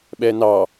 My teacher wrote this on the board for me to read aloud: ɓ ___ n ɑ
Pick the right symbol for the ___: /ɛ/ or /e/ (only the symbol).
ɛ